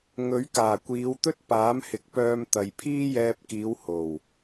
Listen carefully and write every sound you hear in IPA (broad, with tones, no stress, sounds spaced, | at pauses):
ŋ ɵ˨˥ ɥ k aː˨˩ kʷ iː˨˧ w t̪ ɵ˥ t̚ p aː˨˥ m h ɪ˨ k̚ p œː˧ m t̪ ɐ˨ j pʰ iː˥ j ɛː˧ p̚ k iː˨˧ w h o˨˩ w